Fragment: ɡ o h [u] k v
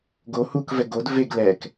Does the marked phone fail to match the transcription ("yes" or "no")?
no